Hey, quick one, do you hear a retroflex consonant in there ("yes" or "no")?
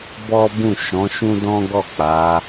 no